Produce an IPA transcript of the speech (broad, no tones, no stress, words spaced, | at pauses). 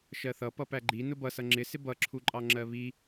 ʃɜθʌ pʌpæɡ͡ǃi nʊbʌsʌ ŋ͡ǁɪsɪ bʌǁʰuǃʼɑ ŋ͡ǁɜβi